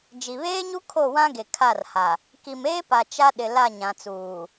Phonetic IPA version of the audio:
d͡ʒ i˨ β eː˦ ɲ u˦ kʰ o˦˨ w ã˦ ɡ e˨ kʰ a˦˨ r h a˨ | k i˨ m eː˦ p a˨ t͡ʃ a˦ ɗ ɪ˨ l a˦˨ ɲ ã˨ t͡s uː˨

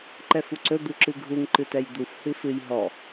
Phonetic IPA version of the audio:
ǃ ɛ f u ǀ ɵ d̪ u ǁ ɨ ɡʱ u ŋ ǃ ɨ t ɛ j d̪ u f h ɨ f ɨ j ɦ ɔ

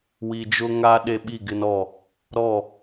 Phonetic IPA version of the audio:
w i˨ d͡ʒ ʊ˦ ŋ a˦ ɗ e˨ ɓ i˦˨ ɡ ɪ˦ n ɔ˦˨ | ɾ ɔ˦˨

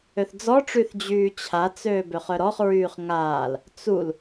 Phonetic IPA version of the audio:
ø θ d͡z ɔ ʈ͡ʂ y θ d͡ʑ yː t͡ɕʰ a t͡s øː b ø χ œ ɾ ɔ χ ɹ yː χ ŋ aː l | t͡s u l

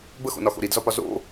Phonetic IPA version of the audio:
b ə x o̰ n ɒ x o̰ ɾ i d z ɒ p ɒ z o̰

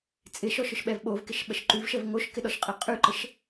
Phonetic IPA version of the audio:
t͡sʼ ɪ ʃ ɔ ʃ ʊ ʃ ɓ ɛ v ɓ o v k ɪ ʃ ɓ ə ʃ ǃ ʉ v ʃ ə v ŋ o ʃ k ɪ ɗ ɔ ʃ qʼ ɪ qʼ ʉ ǃ ə ʃ

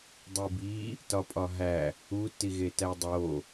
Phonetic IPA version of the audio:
dˤ i b i | t ɒ pʼ ɒ ɦ æ | u t i ɣ e t æ dˤ o

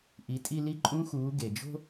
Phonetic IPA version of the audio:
ʔ i˩˧ tʼ i˧ l i˧˥ ǃʼ ũ˧˥ x uː˩˧ ɡ e˩ d͡ʒ o̤˥

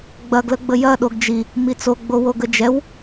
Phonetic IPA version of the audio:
ɡ͡b ɐ ɡ l ə ɡ͡b ə j ɐ ɗ o ɡ d͡ʒ i | m i t͡s o ɡ͡b o w o ɡ ə d͡ʒ ɛ w

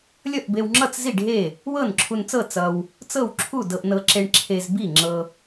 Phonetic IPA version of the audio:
lʲ ʌ˥˨ ʔ b e˧ w ŋ͡ǁ ʌ˥˨ t͡s z i˥˨ ɖʱ e˥˨ | w ɤ˥˨ n ǁʰ u˧ n t͡s ɤ˥˨ t͡s ʌ˧ w | t͡s ɤ˥˨ w ǁʰ u˥˨ d ɤ˧ ʔ n ɤ˧ ǁ e˧ ɳ ǁʰ e˧ z b i˥˨ ŋ͡ǁ ɤ˧

